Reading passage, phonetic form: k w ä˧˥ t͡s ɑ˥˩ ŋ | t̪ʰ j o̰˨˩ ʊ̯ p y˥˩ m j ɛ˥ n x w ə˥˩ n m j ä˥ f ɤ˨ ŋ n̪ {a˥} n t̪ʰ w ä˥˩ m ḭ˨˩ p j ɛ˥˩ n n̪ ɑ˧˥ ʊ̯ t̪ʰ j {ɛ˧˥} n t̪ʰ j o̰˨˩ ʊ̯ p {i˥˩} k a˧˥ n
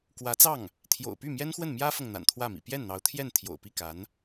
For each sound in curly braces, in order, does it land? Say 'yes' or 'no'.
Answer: no, no, yes

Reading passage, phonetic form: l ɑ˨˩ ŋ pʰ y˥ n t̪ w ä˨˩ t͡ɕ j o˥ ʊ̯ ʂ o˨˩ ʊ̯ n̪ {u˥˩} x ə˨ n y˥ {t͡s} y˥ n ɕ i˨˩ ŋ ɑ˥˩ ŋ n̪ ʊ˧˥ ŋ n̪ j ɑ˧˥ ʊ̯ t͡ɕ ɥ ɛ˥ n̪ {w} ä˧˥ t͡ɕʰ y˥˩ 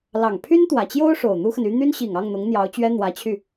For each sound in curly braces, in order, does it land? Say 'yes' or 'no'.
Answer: no, no, yes

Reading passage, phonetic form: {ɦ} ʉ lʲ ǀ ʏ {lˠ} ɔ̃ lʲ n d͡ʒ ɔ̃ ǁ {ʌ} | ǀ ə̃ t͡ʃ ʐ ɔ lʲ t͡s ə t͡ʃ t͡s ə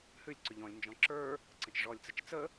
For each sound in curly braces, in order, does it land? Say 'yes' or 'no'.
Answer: no, no, no

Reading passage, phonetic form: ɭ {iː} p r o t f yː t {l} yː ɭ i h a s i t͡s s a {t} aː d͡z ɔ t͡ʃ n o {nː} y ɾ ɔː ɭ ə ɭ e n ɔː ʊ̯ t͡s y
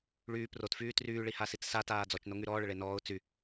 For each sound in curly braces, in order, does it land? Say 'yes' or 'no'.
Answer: no, no, yes, no

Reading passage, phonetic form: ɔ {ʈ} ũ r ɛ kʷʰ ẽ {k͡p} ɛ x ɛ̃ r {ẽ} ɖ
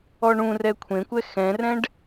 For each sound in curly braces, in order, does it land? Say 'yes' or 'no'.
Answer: no, no, no

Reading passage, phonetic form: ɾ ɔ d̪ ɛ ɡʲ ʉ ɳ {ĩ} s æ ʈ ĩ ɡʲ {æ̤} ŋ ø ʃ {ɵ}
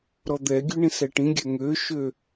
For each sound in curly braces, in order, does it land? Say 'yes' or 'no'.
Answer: yes, no, no

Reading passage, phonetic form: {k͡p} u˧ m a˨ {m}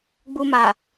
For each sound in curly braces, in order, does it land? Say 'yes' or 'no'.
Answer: no, no

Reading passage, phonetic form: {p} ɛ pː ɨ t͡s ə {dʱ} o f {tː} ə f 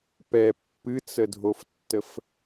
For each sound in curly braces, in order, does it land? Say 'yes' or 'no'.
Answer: yes, yes, yes

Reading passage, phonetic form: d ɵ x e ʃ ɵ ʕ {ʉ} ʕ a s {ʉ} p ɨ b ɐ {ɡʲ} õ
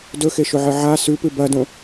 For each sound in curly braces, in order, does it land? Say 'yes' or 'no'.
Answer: no, yes, no

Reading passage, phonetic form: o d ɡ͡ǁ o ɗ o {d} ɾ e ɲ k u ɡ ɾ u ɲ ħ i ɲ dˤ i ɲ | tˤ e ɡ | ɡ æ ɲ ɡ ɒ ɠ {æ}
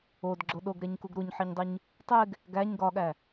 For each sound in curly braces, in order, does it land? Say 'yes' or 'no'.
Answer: no, yes

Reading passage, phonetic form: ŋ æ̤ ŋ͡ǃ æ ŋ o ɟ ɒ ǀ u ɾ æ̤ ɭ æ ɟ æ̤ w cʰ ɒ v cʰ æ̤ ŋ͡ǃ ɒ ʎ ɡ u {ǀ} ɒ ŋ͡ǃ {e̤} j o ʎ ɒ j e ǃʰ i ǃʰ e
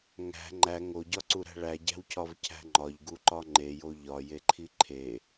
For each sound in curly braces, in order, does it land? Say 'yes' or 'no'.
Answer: no, no

